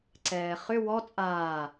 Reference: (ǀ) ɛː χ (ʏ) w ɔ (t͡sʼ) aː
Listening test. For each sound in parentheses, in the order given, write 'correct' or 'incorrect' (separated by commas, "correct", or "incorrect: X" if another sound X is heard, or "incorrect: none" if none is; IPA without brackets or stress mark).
correct, correct, correct